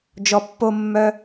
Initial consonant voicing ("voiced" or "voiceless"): voiced